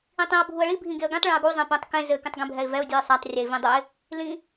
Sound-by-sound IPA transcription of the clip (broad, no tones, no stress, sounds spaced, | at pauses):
ĩ tˤ ĩ ʊ̯ bʱ u ə̯ ɭ i bʱ ĩ ɡ e ə̯ ɡ ĩ tˤ ɭ ɛ̃ ə̯ ɡ u zˤ ɛ̃ p ũ tˤ k ẽ z ɘ k ẽ tˤ ɡ ẽ bʱ ɛ ɪ̯ v ɛ ʊ̯ dʲ u ɪ̯ sˤ a tˤ rʲ ɛ ɪ̯ v ĩ dˤ u ɪ̯ | l ĩ